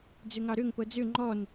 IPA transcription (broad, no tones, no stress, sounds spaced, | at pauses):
d͡z ø ŋ ɑ ɾ ø ŋ p ɤ d͡z ø ŋ͡ǃ ɔ n